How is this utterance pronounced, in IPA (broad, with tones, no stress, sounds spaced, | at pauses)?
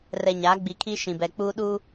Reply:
r ɛ˨ ɲ aː˨˦ ɡ͡b i˨ kʰ i˦ ʃ ĩ˨ b ɛ˨ k͡p uː˦ ɗ uː˦